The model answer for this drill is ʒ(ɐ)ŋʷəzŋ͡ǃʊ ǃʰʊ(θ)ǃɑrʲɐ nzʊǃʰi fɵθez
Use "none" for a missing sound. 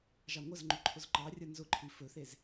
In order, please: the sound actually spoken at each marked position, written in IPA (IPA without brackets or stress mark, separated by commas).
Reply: ɑ, z